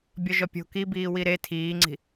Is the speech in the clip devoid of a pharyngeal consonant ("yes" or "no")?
yes